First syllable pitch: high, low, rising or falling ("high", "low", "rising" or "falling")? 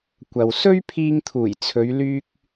low